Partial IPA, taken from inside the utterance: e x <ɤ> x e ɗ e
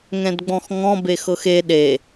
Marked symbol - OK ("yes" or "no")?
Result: yes